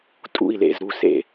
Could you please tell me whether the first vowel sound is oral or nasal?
oral